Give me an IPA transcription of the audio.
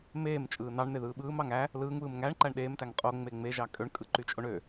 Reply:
m eː m t͡ʃʼ ɯː n ɑ ɳ n̪ e ð ɯː ɓ ɯː m ɑ ŋ æ | l ɯː ŋ β ɯː m ŋ æ ɳ ǃ æ ɳ ɗ eː m t æ ŋ qʼ o ŋ͡m e ŋ͡m e ʒ ɑ kʼ ø ɳ kʼ ɯ ǃ y t͡ʃʼ o ɳ ø

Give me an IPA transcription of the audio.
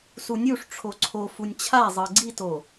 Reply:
s u nʲ u ʂ ʈ͡ʂʰ o ǀʰ o f u nʲ t͡ɕʰ a zˤ ɤ ɡ͡ǀ i t o

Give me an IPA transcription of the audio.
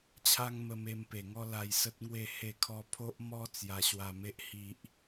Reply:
t͡ɕʰ a˦ ŋ m ə˧ m e˧ m p e˨˩ ŋ ɔ˦ l a˧ j s ə˦ t̚ ŋ w e˥˧ h e˥˧ kʰ ɔ˦ pʰ o˦ ʔ m ɔ˦ t͡s j a˧ ɕ w a˧ m e˦ ʔ h i˦ ʔ

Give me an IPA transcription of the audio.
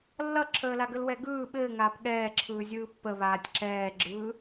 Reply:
lː ʌ ǁʰ əː l a ɡ ə l w ɛ ɡ ɯː ɓ ɘː ŋ aː p ɠ ɛː ǁʰ ɯː zʲ ɯː pː ə β aː tʲ ǁ ɛː ɡ͡ǁ ɯː

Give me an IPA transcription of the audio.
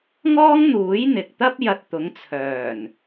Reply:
ŋ ɔː˥ ŋ n̪ uː˨˥ j n̪ ɪ˨ k̚ t̪ ɐ˥ p̚ j ɐ˧ t̚ t̪ ʊ˨˧ ŋ t͡sʰ œː˨˩ n

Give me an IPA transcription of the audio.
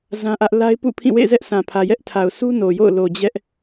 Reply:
z ã˦ ʔ ä˦ ʔ l a˦ ɪ̯ p ṵ˦˨ pʰ ĩ˦˨ w ḛ˦˨ z ɛ˦ ʔ sʰ ã˨ pʰ ä˨ j ɛ˦ ʔ tʰ a˨ ʊ̯ s u˦ n o˨ j o̰˦˨ ʊ̯ l o˨ d͡ʑ ɛ˦ ʔ

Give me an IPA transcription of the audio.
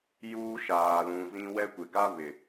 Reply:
j uː˦ ʃ aː˨ l ũ˨ z ĩ˦ w ɛ˦ kʷ ɪ˨ ɡ a˦ β ɪ˨

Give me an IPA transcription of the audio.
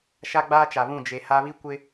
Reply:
ʃ a˦ ɡ͡b aː˦ t͡ʃ a˨ β ũ˦˨ d͡ʒ e˨ h a˦ β i˦ kʷ ɪ˦

